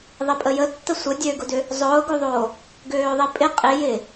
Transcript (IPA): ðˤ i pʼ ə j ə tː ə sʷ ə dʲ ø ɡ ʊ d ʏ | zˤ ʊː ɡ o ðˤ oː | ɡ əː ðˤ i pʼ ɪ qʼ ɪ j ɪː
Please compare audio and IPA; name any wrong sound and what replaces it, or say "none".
əː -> øː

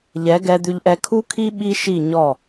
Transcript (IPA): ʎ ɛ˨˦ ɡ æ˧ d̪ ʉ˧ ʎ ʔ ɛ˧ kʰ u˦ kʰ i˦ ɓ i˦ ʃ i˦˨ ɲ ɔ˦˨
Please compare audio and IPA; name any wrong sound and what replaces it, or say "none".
æ˧ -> ɛ˧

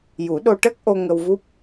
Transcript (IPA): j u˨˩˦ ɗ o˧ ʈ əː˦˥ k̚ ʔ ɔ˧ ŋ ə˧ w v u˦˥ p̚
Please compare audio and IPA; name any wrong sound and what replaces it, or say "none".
ɔ˧ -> o˧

